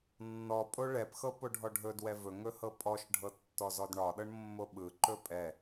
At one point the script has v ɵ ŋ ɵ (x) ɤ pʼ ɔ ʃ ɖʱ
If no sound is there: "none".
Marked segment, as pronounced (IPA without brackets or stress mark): h